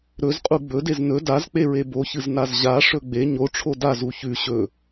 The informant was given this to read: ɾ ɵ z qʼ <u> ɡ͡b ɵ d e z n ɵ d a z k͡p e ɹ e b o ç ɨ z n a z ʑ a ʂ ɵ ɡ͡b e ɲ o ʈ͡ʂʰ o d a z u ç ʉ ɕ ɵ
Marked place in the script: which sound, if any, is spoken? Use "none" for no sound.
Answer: u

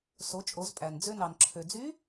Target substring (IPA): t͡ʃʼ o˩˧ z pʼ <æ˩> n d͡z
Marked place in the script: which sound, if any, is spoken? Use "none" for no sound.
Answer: æ˩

